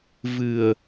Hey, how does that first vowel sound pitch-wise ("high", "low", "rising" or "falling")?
low